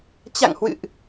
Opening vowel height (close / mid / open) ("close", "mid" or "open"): open